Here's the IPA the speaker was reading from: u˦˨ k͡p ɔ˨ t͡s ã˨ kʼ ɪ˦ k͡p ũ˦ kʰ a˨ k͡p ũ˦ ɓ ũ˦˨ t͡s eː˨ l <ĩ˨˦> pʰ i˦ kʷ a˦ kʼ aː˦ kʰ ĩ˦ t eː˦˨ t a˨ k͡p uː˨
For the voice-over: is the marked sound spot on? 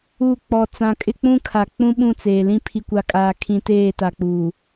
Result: no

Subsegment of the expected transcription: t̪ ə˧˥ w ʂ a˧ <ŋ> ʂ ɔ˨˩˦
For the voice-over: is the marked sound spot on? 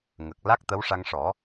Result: yes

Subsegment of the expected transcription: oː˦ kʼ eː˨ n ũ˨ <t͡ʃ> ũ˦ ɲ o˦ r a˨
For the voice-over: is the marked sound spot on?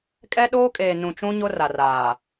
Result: yes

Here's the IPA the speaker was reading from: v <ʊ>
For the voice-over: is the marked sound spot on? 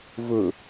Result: yes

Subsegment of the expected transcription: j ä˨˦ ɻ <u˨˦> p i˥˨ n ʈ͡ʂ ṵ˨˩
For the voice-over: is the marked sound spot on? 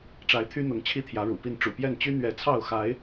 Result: no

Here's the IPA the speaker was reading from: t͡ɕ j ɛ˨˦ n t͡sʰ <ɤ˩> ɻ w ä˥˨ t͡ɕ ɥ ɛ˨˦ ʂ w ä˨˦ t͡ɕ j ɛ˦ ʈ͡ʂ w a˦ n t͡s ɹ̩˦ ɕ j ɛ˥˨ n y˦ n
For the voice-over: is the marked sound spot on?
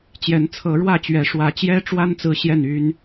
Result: no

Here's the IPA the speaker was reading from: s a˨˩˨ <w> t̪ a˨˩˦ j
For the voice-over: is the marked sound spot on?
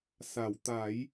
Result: yes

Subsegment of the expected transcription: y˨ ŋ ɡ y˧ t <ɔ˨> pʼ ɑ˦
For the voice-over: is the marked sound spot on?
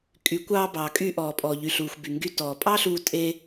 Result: no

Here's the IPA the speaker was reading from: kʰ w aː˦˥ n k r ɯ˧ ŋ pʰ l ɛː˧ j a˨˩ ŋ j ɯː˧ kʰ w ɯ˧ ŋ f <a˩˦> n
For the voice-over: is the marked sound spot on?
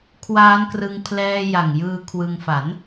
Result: yes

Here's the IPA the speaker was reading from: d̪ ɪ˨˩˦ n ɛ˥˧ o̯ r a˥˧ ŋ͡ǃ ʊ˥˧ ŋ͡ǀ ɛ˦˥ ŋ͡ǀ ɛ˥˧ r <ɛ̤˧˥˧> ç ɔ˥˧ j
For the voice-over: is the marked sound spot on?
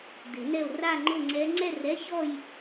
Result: no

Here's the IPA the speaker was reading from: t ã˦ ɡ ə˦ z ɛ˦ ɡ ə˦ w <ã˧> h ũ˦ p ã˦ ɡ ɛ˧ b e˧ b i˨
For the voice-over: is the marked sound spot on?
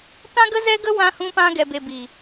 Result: no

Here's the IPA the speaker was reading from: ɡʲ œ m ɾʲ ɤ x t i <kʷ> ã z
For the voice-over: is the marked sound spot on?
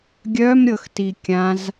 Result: no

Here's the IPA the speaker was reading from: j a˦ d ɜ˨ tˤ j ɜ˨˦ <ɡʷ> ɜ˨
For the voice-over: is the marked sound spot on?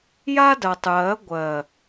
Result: yes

